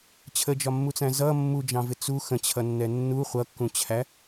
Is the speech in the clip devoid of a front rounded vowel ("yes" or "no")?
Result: yes